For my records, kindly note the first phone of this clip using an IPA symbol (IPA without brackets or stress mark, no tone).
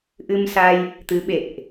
ʔ